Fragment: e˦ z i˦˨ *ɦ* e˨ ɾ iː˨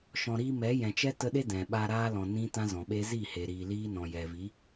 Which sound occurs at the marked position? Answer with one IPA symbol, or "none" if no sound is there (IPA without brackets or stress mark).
h